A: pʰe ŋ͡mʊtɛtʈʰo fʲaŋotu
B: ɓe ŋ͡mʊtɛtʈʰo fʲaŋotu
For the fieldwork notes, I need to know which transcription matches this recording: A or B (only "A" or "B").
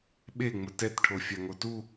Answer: B